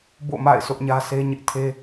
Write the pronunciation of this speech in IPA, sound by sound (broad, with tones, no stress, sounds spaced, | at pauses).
b o̰˦˨ m a̰˦˨ ɪ̯ s ʊ˦ ʔ ɲ ä˦ sʰ e˦ ɲ ɪ˦ ʔ tʰ e˦